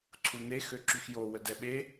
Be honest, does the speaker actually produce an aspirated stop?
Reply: yes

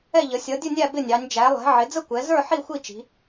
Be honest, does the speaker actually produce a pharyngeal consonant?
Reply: yes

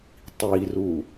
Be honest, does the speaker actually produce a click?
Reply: no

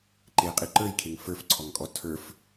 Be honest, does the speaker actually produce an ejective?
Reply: yes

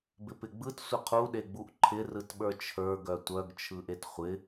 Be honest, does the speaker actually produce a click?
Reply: yes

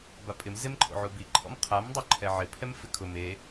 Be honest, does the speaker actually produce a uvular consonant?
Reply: yes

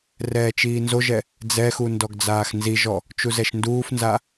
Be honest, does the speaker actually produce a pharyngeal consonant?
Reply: no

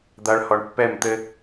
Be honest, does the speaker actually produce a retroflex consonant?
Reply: yes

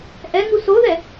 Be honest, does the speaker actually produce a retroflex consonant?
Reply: no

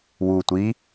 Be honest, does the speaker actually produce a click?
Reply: no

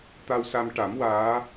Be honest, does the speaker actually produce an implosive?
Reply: no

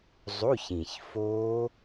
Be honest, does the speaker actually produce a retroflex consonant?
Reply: no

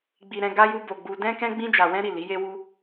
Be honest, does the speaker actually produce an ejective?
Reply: no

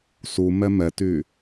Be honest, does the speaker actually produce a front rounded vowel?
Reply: yes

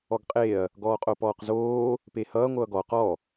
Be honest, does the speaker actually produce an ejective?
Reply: yes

